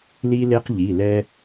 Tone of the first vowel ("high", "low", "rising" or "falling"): high